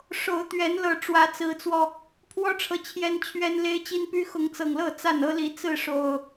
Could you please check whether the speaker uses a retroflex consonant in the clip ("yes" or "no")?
yes